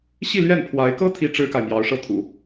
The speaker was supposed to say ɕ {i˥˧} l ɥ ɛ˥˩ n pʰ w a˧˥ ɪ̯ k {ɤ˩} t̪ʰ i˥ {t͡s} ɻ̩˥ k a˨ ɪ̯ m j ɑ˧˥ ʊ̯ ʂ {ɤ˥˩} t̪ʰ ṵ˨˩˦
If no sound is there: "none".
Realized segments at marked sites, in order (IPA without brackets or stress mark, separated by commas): i˥˧, ɤ˥, ʈ͡ʂ, ɤ˥˩